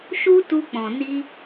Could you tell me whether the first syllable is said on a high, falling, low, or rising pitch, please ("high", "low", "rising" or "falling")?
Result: high